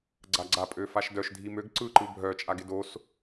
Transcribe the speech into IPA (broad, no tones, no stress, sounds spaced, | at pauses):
ɡ͡ǀ a ɡ͡ǀ a pʼ ø f a ʃ d œ ʃ dʱ i m ø ɡ ǀ ɯ ǃ ɯ bʱ œ t͡ʃʼ a ɡ ɪ d o s